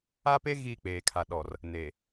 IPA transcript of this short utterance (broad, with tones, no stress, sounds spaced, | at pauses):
a˦ p e˦ ɣ iː˦˨ k͡p eː˨ kʰ a˨ ɗ ɔ˨ r | n e˨